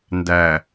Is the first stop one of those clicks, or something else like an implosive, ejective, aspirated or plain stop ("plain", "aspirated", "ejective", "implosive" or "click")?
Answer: plain